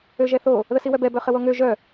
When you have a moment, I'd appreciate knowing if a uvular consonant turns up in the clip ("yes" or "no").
yes